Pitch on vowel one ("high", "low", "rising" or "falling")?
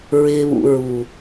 low